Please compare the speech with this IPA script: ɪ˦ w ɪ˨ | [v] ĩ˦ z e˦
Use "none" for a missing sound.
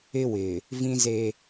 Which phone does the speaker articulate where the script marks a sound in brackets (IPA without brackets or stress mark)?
v